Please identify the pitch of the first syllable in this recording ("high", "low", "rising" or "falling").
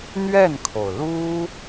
falling